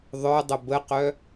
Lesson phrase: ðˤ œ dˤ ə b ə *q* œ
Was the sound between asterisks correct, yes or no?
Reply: yes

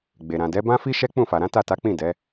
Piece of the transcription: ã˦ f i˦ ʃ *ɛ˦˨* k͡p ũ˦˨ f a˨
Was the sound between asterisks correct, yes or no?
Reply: no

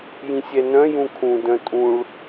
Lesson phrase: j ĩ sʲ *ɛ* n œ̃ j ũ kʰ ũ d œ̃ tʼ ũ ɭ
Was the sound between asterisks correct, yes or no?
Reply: yes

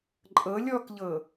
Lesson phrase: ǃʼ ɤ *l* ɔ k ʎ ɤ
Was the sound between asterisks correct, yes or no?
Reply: no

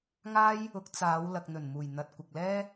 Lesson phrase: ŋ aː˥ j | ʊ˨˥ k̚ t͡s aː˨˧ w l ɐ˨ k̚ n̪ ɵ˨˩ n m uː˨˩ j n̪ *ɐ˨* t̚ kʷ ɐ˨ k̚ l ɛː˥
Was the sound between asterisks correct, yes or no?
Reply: yes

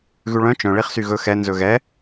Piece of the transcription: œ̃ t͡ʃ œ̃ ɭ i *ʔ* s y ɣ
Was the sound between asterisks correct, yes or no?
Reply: no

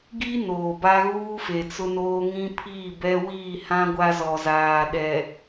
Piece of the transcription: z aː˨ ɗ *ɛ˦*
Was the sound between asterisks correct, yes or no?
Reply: no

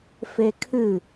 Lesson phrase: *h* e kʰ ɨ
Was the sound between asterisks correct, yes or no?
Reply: no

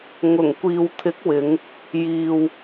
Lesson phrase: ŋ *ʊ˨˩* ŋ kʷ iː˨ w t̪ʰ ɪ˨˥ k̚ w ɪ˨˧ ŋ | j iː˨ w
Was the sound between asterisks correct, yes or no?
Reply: yes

